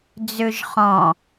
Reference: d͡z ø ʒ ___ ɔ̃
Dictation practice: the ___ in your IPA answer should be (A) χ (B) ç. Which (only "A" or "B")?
A